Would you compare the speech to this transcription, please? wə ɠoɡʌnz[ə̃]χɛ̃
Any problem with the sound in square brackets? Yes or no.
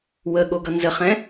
yes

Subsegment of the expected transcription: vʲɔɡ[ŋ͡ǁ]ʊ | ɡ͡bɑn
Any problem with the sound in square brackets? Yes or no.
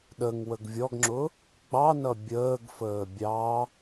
no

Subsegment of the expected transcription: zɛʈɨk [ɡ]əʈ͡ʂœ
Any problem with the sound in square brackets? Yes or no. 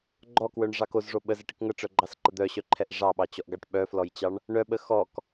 yes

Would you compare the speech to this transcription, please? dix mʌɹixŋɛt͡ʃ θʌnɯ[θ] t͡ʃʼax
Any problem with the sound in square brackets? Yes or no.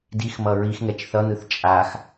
no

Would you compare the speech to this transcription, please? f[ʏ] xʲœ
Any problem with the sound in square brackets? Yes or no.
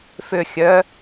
no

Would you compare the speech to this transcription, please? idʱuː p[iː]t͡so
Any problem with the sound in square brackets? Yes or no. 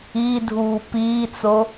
no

